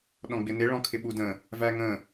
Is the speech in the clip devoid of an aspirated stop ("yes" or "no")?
no